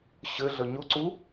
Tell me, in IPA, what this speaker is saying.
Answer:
ɕ ɘ ɮ ə ɲ ʊ ǀ u

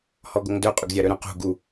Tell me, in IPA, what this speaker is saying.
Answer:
h ɔ ɡ o ŋ d œ qʼ ʏ ɡ zʲ a ɾ œ ɾ œ̃ q ṳ ɡ u

